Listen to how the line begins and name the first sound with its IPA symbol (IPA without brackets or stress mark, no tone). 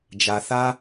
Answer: d͡ʒ